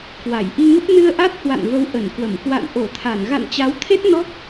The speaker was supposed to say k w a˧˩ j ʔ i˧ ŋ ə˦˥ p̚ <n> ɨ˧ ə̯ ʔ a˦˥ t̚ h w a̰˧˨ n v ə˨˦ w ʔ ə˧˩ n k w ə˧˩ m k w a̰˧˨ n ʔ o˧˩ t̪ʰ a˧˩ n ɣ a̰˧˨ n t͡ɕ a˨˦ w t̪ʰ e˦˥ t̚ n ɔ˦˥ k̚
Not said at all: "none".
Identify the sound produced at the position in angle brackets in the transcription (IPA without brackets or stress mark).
n